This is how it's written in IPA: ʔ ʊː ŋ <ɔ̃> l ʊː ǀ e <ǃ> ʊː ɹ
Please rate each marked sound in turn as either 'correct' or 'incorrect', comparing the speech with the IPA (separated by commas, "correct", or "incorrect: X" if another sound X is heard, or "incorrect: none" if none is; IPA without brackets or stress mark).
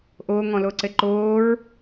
correct, correct